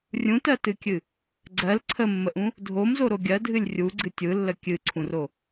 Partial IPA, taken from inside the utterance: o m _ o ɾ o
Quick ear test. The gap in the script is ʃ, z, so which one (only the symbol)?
z